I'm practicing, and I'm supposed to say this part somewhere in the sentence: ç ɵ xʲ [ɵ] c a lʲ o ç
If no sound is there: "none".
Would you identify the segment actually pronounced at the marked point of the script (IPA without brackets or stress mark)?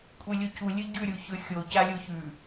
o